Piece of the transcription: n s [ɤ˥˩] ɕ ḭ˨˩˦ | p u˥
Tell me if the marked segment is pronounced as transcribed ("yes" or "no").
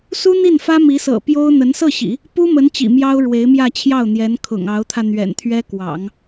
yes